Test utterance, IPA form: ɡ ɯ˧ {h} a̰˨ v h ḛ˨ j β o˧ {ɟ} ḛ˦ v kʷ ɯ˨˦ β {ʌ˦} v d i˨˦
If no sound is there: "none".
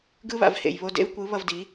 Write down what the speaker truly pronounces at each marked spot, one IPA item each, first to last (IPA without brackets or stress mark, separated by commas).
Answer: β, d, ʌ˧